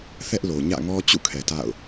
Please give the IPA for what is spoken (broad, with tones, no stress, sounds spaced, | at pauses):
θ ɛ˦ ʔ l o˨ ɲ ä̰˦˨ ŋ ɔ˦ t͡ɕ ṵ˦˨ kʰ ɛ˨ t a̰˦˨ ʊ̯